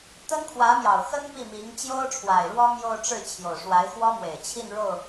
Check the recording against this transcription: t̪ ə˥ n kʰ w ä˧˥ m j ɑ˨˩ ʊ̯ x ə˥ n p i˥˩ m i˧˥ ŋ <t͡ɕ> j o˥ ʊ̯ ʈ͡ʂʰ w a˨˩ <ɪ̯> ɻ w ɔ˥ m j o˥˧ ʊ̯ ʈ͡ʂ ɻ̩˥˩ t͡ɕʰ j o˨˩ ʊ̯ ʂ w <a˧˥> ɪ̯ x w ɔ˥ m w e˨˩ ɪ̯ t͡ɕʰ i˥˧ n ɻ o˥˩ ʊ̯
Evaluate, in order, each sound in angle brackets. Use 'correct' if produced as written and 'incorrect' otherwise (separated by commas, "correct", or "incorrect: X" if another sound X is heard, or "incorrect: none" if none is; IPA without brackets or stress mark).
correct, correct, correct